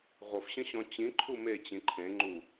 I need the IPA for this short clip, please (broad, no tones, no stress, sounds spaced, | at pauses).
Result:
ʁʷ ʌ f ɕ ə̃ ɕ ɔ̃ t͡ɕ ĩ ǃʰ u m e t͡ɕ ĩ ǃʰ ẽ ŋ͡ǃ u